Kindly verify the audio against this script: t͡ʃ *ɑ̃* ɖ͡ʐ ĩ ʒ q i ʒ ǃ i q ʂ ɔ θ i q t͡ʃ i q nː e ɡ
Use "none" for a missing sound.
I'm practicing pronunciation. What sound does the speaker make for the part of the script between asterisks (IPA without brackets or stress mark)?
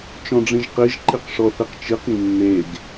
ɔ̃